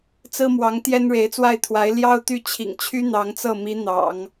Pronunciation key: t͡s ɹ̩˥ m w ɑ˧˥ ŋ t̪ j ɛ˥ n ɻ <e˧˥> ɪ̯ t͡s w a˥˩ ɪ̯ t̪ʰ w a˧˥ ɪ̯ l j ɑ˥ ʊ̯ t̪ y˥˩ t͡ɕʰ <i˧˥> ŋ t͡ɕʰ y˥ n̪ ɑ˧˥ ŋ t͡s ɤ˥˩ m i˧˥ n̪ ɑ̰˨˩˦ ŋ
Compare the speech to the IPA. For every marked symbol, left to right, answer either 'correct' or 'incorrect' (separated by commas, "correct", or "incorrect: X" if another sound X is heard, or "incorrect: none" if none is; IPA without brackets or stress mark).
correct, incorrect: ḭ˨˩